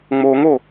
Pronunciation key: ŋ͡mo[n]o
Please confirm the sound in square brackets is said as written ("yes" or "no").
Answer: no